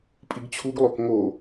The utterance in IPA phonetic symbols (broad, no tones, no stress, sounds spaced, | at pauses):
pʼ i ɡ t͡ɕʰ u ɡ lˠ o k ŋ o